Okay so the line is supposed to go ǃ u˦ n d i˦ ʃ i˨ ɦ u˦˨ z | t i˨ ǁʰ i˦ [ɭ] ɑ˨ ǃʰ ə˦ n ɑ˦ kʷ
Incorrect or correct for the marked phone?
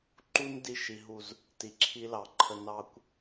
incorrect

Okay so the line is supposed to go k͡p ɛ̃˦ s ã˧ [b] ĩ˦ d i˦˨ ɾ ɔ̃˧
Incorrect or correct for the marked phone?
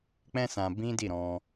correct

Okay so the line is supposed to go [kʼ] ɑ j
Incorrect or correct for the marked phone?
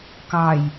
incorrect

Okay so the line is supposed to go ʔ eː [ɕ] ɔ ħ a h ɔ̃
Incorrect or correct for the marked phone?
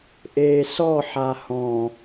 incorrect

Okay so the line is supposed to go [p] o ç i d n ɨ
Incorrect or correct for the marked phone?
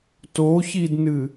incorrect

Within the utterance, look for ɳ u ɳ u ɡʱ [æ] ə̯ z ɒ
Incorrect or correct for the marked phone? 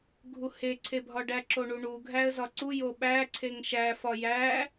correct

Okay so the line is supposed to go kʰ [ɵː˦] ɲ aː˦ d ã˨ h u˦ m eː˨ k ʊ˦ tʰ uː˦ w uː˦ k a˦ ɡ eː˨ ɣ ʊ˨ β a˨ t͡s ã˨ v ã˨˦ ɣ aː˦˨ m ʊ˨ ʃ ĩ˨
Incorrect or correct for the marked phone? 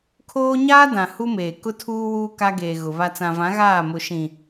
incorrect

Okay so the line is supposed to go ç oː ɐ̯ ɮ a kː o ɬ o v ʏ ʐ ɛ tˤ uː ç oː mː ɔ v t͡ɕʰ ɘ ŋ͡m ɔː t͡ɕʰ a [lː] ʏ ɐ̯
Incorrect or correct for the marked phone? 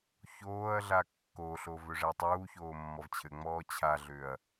incorrect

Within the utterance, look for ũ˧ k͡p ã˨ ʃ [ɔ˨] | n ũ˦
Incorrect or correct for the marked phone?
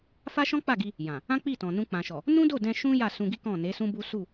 correct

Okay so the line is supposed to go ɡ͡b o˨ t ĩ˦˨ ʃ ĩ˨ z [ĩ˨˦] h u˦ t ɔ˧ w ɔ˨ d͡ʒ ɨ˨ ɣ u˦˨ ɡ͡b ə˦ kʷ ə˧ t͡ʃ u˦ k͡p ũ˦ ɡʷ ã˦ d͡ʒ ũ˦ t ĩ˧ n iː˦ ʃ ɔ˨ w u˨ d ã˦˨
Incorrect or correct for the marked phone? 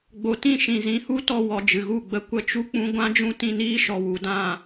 correct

